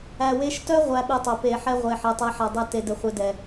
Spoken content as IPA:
æ˨ w e˧ ʃ t œ˦ ʁʷ æ˧ ɓ e˧ tˤ œ˨ p e˨ ħ ɛ˧ ʁʷ e˨ ħ ɛ˨ tˤ ɛ˧ ħ a˨ dˤ æ˧ t e˨ d ɘ˨ χʷ e˧ d ɛ˨

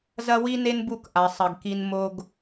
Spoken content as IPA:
z ɐ˦ w i˦ n e˦ n b u˦˨ k ʔ a˨ sˤ ɐ˨ ɡ k i˨ n m o˨ ɡ

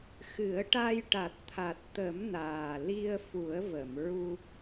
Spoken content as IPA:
x ɨ˨˩˦ ə̯ ʈ a˧ j ʈ a˨˩ t̚ t̪ʰ a˨˩ t̚ t̪ ə˨˩˦ m n aː˨˩ l i˧ ə̯ f u˨˩˦ ə̯ v ə˨˩˨ m ɹ u˧

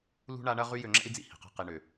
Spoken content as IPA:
l ṳ˦ ɳ a˦ ɳ ɐ˦ ʁ y˦ j ø˧ ŋ͡ǁ ɛ̰˦ i̯ d͡z ḭ˦ h i̤˨ q ɛ̤˧ q i˨ ɳ ø˨

